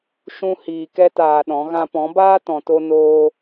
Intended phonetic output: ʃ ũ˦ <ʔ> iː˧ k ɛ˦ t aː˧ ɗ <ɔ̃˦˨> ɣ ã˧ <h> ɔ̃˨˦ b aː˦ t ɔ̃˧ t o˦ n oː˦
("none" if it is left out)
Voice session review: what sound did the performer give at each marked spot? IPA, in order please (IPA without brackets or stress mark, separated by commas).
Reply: h, ɔ̃˨˦, p